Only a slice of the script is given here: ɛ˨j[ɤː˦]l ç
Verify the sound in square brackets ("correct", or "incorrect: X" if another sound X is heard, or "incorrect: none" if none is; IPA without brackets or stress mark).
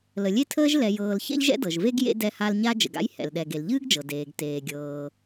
incorrect: ɤː˨